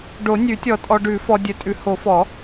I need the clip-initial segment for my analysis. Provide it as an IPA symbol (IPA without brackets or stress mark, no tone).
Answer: ɖ